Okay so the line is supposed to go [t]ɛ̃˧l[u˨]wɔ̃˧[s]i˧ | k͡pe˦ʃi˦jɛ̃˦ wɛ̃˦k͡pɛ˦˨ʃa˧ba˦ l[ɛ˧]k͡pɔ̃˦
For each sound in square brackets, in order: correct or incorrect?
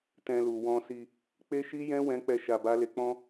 correct, correct, correct, incorrect: e˧

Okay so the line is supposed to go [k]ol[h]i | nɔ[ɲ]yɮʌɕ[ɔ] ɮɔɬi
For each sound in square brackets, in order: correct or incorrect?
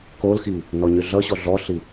correct, incorrect: x, correct, correct

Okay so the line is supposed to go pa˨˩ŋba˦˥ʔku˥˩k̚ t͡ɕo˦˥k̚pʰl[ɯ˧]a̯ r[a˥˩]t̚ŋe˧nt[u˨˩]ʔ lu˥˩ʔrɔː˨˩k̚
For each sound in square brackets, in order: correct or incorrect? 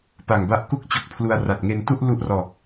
incorrect: u˧, incorrect: a˨˩, incorrect: u˥˩

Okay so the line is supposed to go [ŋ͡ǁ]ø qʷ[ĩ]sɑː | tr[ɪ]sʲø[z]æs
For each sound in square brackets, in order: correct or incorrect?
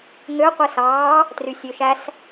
incorrect: ŋ, incorrect: i, incorrect: y, incorrect: ʃ

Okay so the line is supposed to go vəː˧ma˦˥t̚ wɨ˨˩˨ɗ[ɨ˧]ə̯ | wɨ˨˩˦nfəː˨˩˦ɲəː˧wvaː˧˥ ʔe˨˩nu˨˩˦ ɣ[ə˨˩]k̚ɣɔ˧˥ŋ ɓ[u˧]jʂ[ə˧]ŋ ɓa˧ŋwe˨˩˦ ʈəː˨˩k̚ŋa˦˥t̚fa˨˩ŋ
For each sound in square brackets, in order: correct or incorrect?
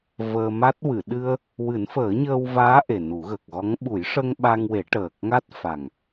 correct, correct, incorrect: u˨˩˦, correct

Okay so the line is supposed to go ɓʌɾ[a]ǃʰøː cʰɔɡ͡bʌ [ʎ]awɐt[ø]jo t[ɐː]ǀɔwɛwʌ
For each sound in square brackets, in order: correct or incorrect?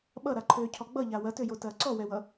correct, correct, correct, correct

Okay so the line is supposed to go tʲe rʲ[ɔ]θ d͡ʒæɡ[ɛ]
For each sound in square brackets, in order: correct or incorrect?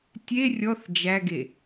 correct, incorrect: e

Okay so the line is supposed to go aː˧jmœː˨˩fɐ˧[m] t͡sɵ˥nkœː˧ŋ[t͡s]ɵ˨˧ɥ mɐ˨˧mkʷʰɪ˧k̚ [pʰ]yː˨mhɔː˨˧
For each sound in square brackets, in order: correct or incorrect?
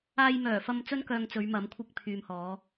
correct, correct, correct

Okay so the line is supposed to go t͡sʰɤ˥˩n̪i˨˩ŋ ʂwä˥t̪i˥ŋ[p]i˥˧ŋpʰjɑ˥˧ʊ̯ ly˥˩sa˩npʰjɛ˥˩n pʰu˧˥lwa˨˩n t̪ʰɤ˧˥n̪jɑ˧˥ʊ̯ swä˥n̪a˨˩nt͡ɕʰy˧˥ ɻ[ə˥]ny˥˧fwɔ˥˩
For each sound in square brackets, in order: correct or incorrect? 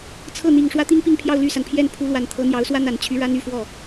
correct, incorrect: a˥

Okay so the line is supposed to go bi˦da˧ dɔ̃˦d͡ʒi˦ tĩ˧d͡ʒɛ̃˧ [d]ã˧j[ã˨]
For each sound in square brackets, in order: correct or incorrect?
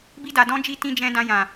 correct, correct

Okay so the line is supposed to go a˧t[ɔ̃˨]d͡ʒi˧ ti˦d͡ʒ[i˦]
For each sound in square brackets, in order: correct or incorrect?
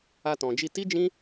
correct, incorrect: ĩ˦

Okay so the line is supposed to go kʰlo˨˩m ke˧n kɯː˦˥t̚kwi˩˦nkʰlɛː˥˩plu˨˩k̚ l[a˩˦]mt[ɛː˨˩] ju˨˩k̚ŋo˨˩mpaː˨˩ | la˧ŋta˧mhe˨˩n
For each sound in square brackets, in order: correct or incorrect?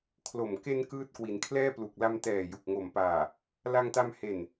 incorrect: a˧, correct

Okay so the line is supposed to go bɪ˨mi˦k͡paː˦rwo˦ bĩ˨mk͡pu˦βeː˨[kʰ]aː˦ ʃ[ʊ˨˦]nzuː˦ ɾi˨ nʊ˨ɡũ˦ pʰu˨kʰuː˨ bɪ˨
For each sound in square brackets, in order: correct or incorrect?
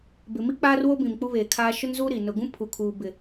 correct, incorrect: ʊ˦

